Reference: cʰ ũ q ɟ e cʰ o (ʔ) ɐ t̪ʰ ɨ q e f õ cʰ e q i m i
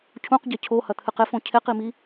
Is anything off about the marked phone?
yes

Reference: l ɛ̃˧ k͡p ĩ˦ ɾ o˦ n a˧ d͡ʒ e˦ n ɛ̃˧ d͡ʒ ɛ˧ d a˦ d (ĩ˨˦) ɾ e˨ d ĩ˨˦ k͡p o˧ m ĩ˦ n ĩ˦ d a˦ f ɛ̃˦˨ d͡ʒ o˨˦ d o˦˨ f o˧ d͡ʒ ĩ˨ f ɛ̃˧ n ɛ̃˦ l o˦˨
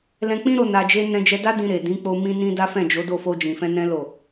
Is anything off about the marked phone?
yes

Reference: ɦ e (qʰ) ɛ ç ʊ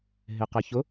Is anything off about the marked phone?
yes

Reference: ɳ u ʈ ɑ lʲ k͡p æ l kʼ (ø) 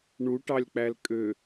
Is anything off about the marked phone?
no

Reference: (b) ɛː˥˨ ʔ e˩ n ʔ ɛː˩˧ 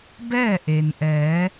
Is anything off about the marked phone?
no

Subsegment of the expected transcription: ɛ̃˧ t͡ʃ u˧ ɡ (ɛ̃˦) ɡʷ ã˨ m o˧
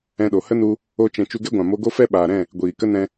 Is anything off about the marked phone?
yes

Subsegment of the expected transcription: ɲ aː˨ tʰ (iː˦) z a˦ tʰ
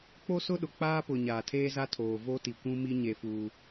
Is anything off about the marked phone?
yes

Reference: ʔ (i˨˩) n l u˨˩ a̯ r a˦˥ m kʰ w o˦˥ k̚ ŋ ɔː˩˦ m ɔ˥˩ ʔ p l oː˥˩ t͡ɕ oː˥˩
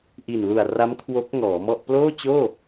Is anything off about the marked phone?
no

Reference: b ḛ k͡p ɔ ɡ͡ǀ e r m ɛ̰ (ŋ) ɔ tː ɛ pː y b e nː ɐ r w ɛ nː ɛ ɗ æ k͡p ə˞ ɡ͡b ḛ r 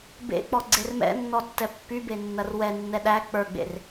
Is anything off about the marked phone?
yes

